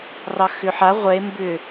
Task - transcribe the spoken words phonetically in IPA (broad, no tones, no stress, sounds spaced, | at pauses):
r ɑ x ʏ ħ a ʁʷ ɛ e̯ m b ʏ